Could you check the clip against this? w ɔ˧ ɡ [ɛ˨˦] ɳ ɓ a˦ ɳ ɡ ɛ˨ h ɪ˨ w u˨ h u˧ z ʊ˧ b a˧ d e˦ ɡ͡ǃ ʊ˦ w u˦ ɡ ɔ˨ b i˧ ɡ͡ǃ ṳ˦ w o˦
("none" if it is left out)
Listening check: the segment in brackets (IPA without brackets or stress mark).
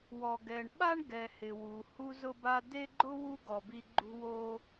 ɛ˧